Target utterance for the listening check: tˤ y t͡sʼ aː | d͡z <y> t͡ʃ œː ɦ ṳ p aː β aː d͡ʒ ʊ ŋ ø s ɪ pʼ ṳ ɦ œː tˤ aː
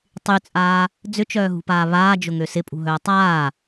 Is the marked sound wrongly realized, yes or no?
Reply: yes